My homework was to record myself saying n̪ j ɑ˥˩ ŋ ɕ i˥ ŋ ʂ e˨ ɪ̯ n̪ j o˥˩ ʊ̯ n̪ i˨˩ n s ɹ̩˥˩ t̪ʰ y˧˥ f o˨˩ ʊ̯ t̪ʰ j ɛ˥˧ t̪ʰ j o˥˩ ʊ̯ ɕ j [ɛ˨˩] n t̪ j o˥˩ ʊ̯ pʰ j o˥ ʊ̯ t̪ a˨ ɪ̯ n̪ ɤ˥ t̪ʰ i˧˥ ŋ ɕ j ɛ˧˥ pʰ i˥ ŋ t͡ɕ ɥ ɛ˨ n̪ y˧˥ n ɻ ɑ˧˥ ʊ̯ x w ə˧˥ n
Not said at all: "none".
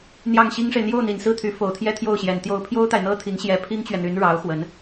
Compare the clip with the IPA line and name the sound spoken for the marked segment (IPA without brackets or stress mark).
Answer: ɛ˨˩